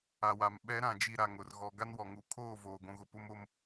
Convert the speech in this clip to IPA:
a˨wa˨m ɓɛ˨˦ ɾã˨d͡ʒi˨ ɾa˨ŋʊ˨r ɣɔ˨ ɡa˦nwɔ˨ŋu˨˦ kʰoː˦˨voː˨ɡʷũ˨ɣʊ˨ pʊ˦mo˦m

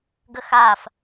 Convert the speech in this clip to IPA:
ɡəxaf

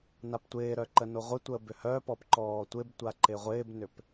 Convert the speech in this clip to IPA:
naptʷɪːɾœ ǃənoʁʷɪtʷəː bʏhœpɔp ǃɔːtʷɪbtʷa ǃɪʁʷɪːbnʏp

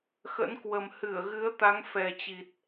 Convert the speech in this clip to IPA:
xə̰˧˥nkwə˨˩m hɨ˧˩ə̯ɣɨ˨˦ə̯ t̪a˨˦ŋfɛ˨˩t͡ɕi˨˩t̚

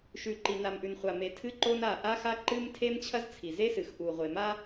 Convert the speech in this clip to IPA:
ʃʉ˨ǃi˨na˨mʔʉ˨n χʷa˨ me˨tʰɨ˦ǃo˦n a˦˨ ʔa˦xa˦ǃɨ˦m tʰe˦mt͡ɕʰɐ˦zt͡sʰi˨ ze˦sɨ˨x ʔu˨ ʁʷe˨ma˦

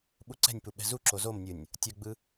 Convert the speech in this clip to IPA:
ɓuǀɛ̤nʲpu ɓɛ̤zuǁo zomnʲɯnʲ | tʲʌɡ͡bɯ

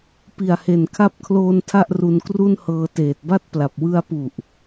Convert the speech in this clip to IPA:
pi˨˩a̯he˨˩nkʰa˦˥p̚kʰloː˧n tʰa˥˩ʔru˧nkru˥˩nhɤː˧ teː˨˩t̚ba˥˩t̚pla˨˩p̚ wɯ˧a̯pu˨˩ʔ

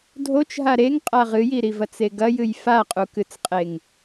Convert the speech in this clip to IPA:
dʱot͡ʃɦa ɾeŋ qʼaʁɨjiɾi vɐt͡seɡɐjɨj faqʼukɨt͡sqʼeŋ

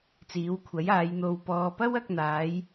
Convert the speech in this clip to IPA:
t͡siː˨˥wkʷʰɐ˨˥jaː˨˧j n̪o˨wpɔː˨pɐ˥wɐ˧k̚ n̪aː˨˥j

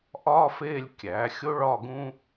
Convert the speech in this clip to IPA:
ʔɒː˥feː˥˧lʲ kʲæː˩˥xʲo˥ɭɒ˥˧ ɡũ˥

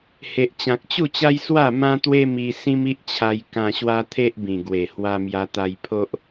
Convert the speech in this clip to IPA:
he˨ʔt͡ɕã˨k̚t͡ɕu˥˧t͡ɕa˦j swa˥˧mã˦t̪we˦ mi˧ sĩ˦mi˦ʔt͡ɕʰa˧j kã˧ɕwa˦t̪ʰe˦ʔbĩ˨˩ ɡwe˨˩hwa˧mja˧ t̪a˧jpʰo˦ʔ

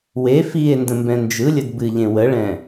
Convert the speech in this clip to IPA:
we fie̯ ndə̃mbɛ̃nd͡ʒɯlʲəd bɨʎẽ wəɭɛ̃

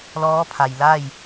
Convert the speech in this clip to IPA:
lɔː˧˥pʰa˩jla˥˨j

